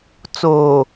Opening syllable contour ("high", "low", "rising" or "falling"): low